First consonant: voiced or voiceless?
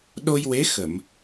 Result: voiced